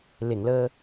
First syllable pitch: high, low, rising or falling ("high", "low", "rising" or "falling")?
low